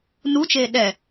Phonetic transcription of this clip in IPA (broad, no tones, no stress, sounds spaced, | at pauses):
n u t͡ʃ eː ɗ ɛ